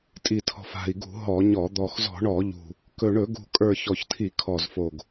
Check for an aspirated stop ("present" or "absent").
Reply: present